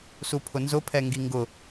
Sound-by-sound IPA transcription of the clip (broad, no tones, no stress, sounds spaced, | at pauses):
s u pʰ ʊ n z ʊ pʰ ɛ ŋ ɡ i ŋ ɡ ʊ